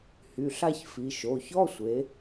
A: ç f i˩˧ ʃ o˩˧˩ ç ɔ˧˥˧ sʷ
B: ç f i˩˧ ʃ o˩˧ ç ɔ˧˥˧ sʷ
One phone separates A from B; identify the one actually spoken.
A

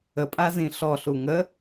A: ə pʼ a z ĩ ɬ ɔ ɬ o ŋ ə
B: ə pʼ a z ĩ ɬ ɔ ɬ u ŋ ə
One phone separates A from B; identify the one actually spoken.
B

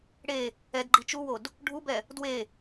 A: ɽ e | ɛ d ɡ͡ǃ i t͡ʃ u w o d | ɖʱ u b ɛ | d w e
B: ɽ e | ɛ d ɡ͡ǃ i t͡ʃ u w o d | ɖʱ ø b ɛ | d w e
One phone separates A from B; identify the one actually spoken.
A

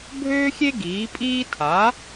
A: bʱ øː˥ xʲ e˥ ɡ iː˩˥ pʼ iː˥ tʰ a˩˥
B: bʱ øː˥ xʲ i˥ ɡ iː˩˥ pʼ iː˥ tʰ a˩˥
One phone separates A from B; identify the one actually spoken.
A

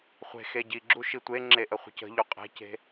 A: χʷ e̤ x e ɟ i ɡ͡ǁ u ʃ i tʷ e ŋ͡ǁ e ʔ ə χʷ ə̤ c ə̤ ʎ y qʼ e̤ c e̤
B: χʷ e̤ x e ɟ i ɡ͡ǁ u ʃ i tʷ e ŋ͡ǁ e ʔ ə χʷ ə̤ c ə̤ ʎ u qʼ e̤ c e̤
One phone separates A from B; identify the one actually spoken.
B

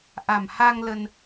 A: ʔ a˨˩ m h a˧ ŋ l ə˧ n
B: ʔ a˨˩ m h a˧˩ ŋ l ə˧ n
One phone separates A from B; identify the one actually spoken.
A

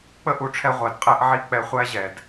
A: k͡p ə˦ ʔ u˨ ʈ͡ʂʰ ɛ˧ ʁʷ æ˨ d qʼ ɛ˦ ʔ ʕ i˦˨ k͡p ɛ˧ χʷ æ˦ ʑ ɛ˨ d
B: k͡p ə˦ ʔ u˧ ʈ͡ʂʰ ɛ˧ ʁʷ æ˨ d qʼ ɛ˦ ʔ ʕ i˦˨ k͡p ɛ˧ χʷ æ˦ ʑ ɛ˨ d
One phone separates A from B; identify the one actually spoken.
A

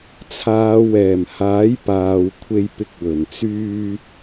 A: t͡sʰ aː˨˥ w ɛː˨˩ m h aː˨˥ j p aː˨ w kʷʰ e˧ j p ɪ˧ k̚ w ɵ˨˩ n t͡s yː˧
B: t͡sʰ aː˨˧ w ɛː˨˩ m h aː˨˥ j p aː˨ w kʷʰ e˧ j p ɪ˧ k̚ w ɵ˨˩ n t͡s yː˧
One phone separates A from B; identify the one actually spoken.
B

